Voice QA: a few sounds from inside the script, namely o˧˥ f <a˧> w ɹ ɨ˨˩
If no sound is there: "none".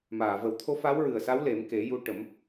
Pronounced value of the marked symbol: a˧˥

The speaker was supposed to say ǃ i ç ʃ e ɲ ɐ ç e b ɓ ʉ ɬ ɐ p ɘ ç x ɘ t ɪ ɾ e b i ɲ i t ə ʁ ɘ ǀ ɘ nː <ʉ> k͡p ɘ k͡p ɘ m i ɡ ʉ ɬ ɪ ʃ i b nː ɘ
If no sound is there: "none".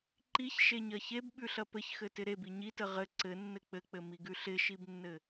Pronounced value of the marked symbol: ɘ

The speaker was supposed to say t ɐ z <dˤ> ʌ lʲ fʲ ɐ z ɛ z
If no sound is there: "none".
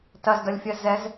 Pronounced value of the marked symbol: d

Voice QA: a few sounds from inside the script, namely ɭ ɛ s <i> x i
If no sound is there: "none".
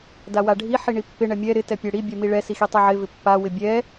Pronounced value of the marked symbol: i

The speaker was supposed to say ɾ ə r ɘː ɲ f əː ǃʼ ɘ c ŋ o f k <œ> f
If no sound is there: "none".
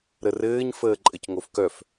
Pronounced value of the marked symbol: œ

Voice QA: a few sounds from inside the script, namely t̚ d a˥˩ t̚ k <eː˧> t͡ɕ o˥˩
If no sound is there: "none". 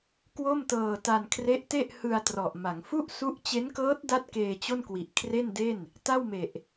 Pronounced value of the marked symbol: eː˧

